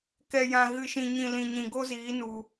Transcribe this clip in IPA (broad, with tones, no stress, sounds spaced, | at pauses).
k ɛ˨ j ã˨ ɣ ɨ˨ ʃ ĩ˨ ɲ ĩ˨ l ĩ˨ ɲ ĩ˨ ɡ o˦ z iː˨˦ n u˧